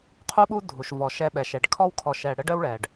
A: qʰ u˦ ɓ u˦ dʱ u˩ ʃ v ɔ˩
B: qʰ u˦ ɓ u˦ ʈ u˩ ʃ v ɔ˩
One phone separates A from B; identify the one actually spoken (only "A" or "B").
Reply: A